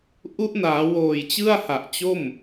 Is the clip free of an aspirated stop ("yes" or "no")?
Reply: yes